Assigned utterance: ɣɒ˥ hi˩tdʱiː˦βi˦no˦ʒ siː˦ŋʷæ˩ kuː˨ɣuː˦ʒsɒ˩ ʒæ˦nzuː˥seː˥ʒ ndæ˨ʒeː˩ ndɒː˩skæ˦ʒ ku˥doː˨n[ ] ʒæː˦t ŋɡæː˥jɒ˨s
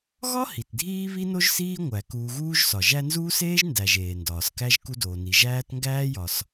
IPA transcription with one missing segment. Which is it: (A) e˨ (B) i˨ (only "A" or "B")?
B